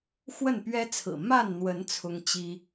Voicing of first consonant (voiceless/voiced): voiceless